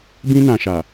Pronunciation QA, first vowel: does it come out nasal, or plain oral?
nasal